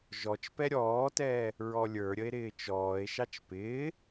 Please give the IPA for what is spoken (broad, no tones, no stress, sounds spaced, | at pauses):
ʒ ɔ t͡ʃ p ɛ ɾʲ ɔː t ɛː | ɹ ɔ lʲ ə˞ ɾʲ ə e̯ ɾ ɪː t͡ʃ ɔː e̯ ʃ ɑ t͡ʃ p ɪː